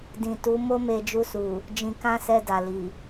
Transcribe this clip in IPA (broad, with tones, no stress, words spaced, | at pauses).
dĩ˨tu˨˦ mo˦me˧d͡ʒu˧su˨ | d͡ʒĩ˧kã˦sɛ˧da˨ li˨